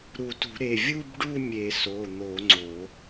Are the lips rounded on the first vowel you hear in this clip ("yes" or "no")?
yes